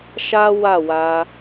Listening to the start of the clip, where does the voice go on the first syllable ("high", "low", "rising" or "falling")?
high